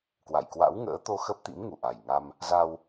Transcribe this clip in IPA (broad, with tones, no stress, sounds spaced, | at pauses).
k w a̰˧˨ j k w a̰˧˥ w ŋ ə̰ː˧˥ t̪ o˧ x ə˦˥ p̚ t̪ ḭ˧˥ m ŋ u˨˩ ʔ a˨˩ j ŋ a˧ m | z a˧ w